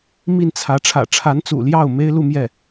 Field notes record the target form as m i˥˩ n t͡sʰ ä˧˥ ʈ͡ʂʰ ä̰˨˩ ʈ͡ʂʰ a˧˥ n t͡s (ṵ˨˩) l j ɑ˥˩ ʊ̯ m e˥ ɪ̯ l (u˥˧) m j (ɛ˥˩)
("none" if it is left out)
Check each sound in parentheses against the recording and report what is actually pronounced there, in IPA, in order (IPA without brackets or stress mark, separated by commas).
ṵ˨˩, u˥˧, ɛ˥˩